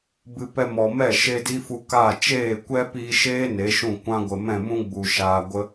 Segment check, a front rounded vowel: absent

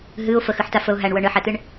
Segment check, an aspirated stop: absent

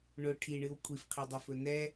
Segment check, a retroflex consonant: present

